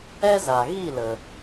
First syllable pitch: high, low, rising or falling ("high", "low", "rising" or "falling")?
high